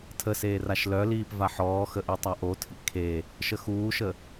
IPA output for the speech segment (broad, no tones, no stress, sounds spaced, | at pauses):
tʰ ə s eː r a ʃ l œ l iː p v a ħ ɔː x ə ʔ y tˤ a ʔ o tʰ ḭ kʰ e | ʃ ə x uː ʃ ə